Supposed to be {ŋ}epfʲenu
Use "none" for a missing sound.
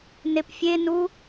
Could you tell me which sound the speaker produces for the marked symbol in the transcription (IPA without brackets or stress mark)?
n